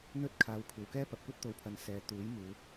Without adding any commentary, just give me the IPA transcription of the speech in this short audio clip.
n̪ ɵ˥ t̚ kʰ aː˨ w kʷʰ ɐ˨ w k ɛː˥ p ɐ˨ p̚ kʷ ɐ˥ t̚ t̪ o˨ w pʰ ɐ˨ n s ɛː˨˧ t̪ uː˨˥ j m uː˨˧

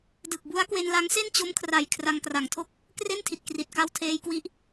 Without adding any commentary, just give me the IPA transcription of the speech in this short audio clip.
d ɯ˨˩ k̚ b u˦˥ a̯ k w e˧ n l a˦˥ ŋ s e˥˩ n t͡ɕ o˦˥ m kʰ r a˨˩ j kʰ r a˧ ŋ k r a˨˩ ŋ tʰ o˥˩ k̚ | k r e˥˩ n tʰ i˨˩ t̚ k r i˨˩ t̚ k a˧ w tʰ eː˧ j k w i˦˥ ʔ

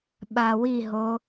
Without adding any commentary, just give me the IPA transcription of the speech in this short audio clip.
ɓ a w i ɦ o

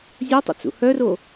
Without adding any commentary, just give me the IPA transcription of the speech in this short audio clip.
zʲ o tˤ o̰ t͡s ṵ h œ r o

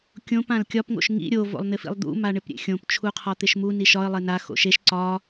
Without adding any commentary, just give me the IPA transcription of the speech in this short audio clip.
kʲ õ p ã l kʲ ɒ p ŋ o̰ ʃ ŋ ḭ ɾʲ o v o̰ lˠ n̪ ɪ f ḭ lˠ d̪ ṵ m a ɳ ɪ p ɾʲ ḛ xʲ õ p t͡ʃʰ u qʰ ɒ t̪ ɪ ʃ m u n i ʃ ɒ ə̯ lˠ e n a x o̰ ʃ e ʃ ǀ ɒ

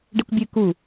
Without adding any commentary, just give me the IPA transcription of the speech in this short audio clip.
ɖ e kʷ bʲ ɨ k u

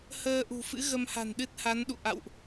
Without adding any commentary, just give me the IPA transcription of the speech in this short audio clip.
h əː˧ ʔ ṳ˨˩ f ɨ̰˧˥ ɣ ə˧ m h a̤˨˩ n ɗ ɨ˦˥ t̚ h a˨˦ n ɗ ṵ˧˨ ʔ a̰˧˨ w ʔ

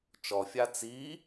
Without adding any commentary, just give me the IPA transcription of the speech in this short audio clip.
t͡ʃ ɔ fʲ a t͡s i

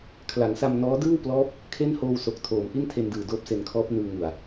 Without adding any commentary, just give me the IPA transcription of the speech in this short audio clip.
kʰ l a˩˦ ŋ s a˧ m n ɔː˦˥ d ɯː˥˩ w p l ɔː˦˥ p̚ | kʰ e˥˩ n h oː˧ w s o˨˩ k̚ tʰ oː˩˦ m ʔ i˥˩ n tʰ e˧ n d ɯː˨˩ d oː˦˥ p̚ s e˧ n kʰ ɔː˦˥ p̚ n ɯː˧ ŋ u˨˩ a̯

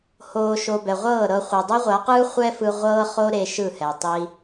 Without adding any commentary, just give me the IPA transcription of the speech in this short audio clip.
h oː˨ ʃ o˨ b ɛ˨ ʁʷ ɤː˦˨ ɾ ɤ˧ χʷ e˨ dˤ ɛ˦ ʁʷ a˨˦ q ɯː˦ χʷ ɛ˦ f ɯ˧ ʁʷ ɤː˦ χ o˦ ɾ e˧ ʃ ɯ˦˨ h ɛ˨ tˤ i˦

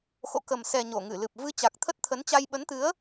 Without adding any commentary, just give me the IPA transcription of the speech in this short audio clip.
x o̰˧˨ k ə˨˩ m s ɛ˨˩ ɲ o˧˩ ŋ ɨ˧˩ l ɨ˨˩ p̚ v ɨ˨˦ t͡ɕ a˨˩ k̚ t̪ʰ ə˦˥ t̚ t̪ʰ ə˨˦ n t͡ɕ a˧ j ɓ ə˨˦ n t̪ ɨ˨˦ ə̯

